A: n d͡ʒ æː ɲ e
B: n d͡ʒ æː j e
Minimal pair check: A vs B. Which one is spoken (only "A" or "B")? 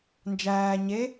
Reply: A